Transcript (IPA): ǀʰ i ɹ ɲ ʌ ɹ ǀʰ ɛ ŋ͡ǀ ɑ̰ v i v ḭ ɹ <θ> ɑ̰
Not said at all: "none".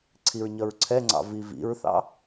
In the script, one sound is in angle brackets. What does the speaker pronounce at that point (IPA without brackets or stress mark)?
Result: θ